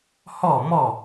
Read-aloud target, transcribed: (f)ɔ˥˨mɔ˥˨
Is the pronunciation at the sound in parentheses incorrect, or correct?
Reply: incorrect